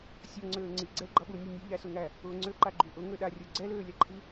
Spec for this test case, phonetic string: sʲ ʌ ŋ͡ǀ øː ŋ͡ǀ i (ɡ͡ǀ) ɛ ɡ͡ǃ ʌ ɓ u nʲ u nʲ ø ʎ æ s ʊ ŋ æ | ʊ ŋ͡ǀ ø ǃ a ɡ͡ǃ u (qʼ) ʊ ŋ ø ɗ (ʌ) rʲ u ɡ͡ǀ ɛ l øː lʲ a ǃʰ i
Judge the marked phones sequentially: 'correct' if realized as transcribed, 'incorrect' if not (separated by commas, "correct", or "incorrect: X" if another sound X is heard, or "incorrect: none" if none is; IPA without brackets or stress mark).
correct, incorrect: ʔ, incorrect: a